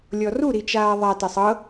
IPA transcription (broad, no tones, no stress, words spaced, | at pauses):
lʲɔru ɾit͡ʃaːðˤa tɛsˤɤ